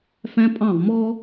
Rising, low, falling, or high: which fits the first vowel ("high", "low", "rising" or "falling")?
high